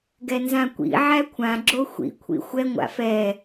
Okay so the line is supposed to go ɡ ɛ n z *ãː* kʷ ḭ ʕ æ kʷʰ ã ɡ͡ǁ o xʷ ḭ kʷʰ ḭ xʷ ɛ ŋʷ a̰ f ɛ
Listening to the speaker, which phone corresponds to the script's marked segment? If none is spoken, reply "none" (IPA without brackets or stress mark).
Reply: ã